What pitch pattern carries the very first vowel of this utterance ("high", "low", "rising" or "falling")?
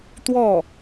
falling